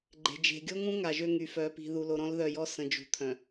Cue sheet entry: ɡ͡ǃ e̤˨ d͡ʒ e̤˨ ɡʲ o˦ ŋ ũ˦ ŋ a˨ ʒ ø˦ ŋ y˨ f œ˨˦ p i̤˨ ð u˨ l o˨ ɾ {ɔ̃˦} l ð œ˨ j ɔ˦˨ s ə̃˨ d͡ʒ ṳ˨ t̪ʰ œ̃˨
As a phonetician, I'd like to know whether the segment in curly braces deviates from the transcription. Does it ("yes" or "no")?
no